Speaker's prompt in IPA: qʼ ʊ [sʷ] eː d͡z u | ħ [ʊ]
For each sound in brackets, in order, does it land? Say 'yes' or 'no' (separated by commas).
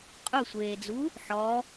yes, no